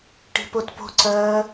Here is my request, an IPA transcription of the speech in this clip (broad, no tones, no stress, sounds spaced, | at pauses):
ʈ i̤ p o t p o̤ ǀ ɜ